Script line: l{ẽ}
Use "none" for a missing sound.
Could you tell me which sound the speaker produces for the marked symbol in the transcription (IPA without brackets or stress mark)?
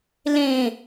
ẽ